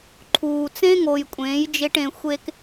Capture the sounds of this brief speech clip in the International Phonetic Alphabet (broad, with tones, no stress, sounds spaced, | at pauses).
ǃʰ uː˨ t͡s ẽ˦ ŋ o˨ j kʷʼ ẽː˨˦ j d͡ʒ e˦ ʈ ẽ˧ xʷ e˧ k